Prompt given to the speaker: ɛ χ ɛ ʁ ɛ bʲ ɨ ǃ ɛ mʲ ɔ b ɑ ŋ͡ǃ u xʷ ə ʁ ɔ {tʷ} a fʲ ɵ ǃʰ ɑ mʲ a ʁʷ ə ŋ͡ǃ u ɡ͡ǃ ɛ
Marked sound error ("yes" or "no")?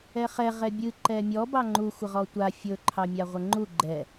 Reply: no